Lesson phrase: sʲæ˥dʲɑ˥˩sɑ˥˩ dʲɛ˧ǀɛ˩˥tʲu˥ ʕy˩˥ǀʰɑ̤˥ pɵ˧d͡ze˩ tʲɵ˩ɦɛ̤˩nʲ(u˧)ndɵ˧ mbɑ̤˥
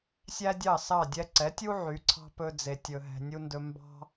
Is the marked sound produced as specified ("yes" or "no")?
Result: yes